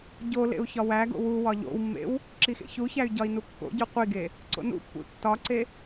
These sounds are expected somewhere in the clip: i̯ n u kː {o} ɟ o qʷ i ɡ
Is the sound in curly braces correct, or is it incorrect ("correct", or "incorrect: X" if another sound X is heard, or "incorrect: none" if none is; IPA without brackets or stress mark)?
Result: incorrect: o̰